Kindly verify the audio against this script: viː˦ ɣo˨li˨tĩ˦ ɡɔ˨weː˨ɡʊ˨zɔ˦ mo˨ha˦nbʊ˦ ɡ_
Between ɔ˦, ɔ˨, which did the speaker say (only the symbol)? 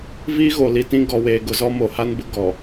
ɔ˨